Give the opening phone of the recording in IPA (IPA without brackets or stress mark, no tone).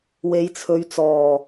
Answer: w